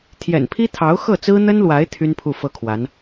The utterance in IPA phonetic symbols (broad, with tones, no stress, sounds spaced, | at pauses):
t̪ʰ j ɛ̰˨˩ n pʰ i˥ t̪ʰ ɑ˧˥ ʊ̯ x ɤ˥˩ t͡s ɹ̩˥ n̪ ə˥ n l w a˧˥ ɪ̯ t̪ʰ y˥ n pʰ u˥˩ f ɤ˥ kʰ w a˧˥ n